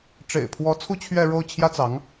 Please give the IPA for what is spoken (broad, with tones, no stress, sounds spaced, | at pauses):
ʈ͡ʂ ḛ˨˩ ɪ̯ pʰ w ɔ˧˥ t͡sʰ u˥ t͡ɕʰ ɥ ɛ˥˧ ɻ o˥˩ ʊ̯ t͡ɕʰ j ä˥ t͡s ɑ˧˥ ŋ